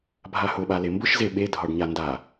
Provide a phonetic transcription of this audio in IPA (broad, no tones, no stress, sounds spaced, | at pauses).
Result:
bʱ a h ʊ ɓ a l e m b ʊ ʃ z e ɓ e dʱ ɒ ɖ ɲ a n d a